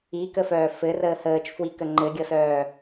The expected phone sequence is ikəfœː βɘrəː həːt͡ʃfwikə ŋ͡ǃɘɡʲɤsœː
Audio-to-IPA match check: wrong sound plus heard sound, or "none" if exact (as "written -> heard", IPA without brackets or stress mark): β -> f